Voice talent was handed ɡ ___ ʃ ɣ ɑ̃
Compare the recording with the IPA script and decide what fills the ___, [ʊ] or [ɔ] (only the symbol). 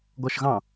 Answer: ɔ